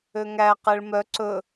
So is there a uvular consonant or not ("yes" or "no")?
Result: yes